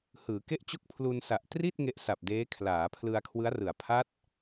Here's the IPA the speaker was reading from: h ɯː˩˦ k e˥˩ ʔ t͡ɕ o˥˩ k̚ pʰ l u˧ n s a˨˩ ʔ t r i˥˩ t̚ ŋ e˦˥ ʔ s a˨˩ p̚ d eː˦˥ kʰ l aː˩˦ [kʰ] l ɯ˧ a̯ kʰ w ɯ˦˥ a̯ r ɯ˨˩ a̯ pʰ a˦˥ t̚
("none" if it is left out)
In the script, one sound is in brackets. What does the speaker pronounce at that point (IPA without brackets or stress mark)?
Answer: pʰ